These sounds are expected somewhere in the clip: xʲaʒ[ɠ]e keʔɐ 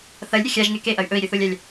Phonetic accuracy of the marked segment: incorrect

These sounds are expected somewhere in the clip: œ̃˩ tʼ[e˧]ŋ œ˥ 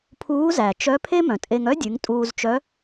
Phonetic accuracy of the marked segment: correct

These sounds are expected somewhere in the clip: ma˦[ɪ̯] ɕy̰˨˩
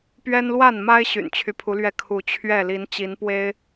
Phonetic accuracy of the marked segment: correct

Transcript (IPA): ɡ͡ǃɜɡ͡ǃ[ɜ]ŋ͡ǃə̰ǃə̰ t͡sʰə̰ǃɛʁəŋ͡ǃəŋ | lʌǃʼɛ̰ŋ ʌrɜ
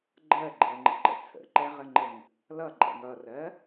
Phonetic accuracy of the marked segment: correct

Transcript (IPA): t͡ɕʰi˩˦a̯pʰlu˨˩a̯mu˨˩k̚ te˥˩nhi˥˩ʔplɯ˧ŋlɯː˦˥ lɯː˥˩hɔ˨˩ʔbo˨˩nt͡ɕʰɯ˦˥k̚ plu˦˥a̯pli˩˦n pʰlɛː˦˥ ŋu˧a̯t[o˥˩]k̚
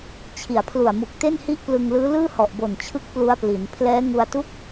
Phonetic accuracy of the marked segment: incorrect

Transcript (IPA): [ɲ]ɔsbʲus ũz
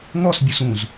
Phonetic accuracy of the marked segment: incorrect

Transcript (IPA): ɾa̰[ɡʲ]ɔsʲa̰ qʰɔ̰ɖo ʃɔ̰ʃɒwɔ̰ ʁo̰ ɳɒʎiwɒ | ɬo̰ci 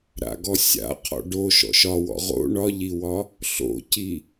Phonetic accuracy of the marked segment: incorrect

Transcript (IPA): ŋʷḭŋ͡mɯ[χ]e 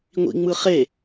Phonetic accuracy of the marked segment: correct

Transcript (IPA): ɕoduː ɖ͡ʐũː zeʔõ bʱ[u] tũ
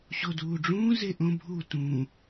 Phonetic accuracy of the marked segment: correct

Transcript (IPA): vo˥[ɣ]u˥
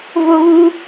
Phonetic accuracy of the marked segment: correct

